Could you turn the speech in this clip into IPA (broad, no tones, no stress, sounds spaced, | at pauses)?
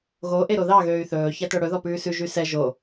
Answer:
ɣ o ʔ e ɾ o ð ɑ ɣ øː y̯ θ ɵː ç æ t œ ɽ ɵ ð ɔ p ʉː s ʉ ʒ y s ɛ ʒ o